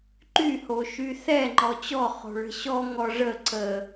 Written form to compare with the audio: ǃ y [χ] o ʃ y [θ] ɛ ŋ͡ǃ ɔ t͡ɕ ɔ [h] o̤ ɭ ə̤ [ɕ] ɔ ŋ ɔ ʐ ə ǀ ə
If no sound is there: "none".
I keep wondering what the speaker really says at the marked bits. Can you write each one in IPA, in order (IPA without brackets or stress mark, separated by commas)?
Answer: h, θ, χ, ɕ